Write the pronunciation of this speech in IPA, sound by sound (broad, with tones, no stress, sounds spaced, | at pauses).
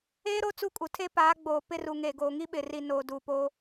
eː˦ ɾ o˦ t͡s u˦˨ kʼ u˨ tʰ e˦ p aː˨˦ ɡ͡b oː˨ p ɪ˦˨ r u˨ ŋ eː˨ ɡ oː˨ ŋ i˦ ɓ ɪ˨ r i˨ n oː˨ d uː˨ p oː˦